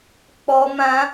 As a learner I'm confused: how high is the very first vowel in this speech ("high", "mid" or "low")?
mid